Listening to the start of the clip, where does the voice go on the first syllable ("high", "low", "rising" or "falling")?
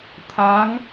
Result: rising